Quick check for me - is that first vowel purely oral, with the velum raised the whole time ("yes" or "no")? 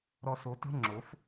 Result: yes